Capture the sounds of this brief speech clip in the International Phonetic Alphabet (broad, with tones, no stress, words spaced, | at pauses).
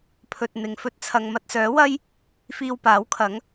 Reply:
pʰɵ˨t̚ n̪ɪ˨˧ŋfɵ˧t̚t͡sʰɐ˧ŋ mɐ˧t̚sœː˨˥wɐ˥j | fiː˧wpaː˨˥wkʰɐ˨˥ŋ